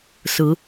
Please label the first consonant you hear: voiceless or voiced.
voiceless